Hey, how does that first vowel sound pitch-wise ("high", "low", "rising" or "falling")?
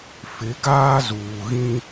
rising